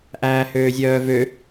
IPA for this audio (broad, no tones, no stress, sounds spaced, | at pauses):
ʔ æː h øː zʲ œː v ø